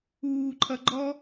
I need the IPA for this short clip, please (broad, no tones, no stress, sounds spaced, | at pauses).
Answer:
uː ǃʰ ʌ ɡ͡ǃ ɔ